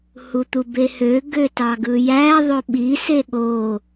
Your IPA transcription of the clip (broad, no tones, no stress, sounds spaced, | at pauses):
h u t̪ u b e h ø ɡ ø t ɑ ɡ ɯ j æ ðˤ ø ɓ i s e ɠ o